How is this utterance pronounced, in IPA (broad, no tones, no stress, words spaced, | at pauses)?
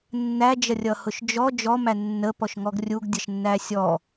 nːæd͡ʒʌrʲʌhʊʃ d͡ʒɔ d͡ʒɔmæ nːəpɔʃŋɔɡ rʲuɡdʲʌʃnːæ sʲɔ